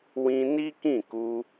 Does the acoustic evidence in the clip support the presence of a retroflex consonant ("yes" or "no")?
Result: no